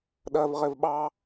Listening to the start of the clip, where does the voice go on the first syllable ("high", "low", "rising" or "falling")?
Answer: low